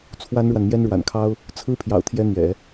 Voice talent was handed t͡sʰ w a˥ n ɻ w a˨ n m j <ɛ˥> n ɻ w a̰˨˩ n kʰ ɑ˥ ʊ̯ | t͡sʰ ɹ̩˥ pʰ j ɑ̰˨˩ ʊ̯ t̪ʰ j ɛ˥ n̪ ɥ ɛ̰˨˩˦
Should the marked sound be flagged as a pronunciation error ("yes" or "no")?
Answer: no